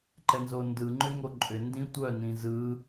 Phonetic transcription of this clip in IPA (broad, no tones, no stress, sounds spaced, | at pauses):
ǃ ɛ n z o n d ɯ ŋ͡ǃ ʏ ŋ o ǃʼ ʏ n d ĩ tʷ œ n ĩ z ɯ